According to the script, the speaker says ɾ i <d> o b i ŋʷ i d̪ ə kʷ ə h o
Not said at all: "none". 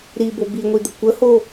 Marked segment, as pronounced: b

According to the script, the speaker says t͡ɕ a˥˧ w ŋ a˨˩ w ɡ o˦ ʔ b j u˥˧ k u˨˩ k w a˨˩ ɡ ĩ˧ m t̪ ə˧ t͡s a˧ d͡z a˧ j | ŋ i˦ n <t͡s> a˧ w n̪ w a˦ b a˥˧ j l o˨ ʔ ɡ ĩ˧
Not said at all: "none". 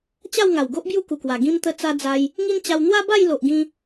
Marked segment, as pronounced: t͡ɕ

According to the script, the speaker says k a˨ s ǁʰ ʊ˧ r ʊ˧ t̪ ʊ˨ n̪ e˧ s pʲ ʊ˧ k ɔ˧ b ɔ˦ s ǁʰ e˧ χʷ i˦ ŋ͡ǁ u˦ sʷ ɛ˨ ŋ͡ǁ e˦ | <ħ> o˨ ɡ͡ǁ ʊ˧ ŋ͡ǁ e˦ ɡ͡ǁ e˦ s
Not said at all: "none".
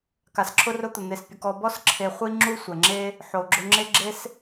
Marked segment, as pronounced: ħ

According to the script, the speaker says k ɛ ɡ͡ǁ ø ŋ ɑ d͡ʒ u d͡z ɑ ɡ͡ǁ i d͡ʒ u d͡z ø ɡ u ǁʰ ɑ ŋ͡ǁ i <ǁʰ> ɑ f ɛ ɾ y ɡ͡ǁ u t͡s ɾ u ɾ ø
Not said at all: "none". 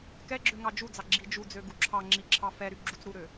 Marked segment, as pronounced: ǁʰ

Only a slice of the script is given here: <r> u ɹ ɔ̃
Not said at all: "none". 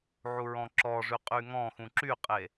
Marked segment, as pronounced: ʕ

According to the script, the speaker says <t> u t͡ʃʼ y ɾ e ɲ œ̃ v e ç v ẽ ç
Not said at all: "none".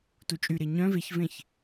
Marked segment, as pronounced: t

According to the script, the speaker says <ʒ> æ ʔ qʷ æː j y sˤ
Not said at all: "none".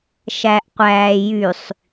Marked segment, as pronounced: ʃ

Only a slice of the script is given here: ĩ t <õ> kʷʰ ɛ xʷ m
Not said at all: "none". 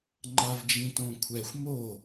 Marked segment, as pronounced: õ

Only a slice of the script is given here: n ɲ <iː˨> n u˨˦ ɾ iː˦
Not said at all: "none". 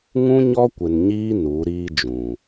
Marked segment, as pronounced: iː˦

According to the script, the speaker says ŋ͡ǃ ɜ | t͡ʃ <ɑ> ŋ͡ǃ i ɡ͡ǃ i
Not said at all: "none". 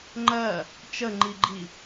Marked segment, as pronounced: ə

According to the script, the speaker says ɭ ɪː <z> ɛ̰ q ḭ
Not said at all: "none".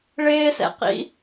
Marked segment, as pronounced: s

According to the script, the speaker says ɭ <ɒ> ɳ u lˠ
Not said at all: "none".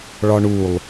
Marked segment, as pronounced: ɒ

